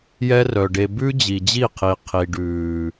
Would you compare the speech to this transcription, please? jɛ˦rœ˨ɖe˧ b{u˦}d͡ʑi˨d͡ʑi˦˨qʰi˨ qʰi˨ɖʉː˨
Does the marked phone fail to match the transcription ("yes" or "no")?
yes